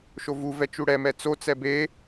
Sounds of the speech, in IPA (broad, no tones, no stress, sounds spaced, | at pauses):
ʃ o v u v ɛ t͡ʃ u ɽ ɛ m ɛ t͡s o t͡s ɛ b e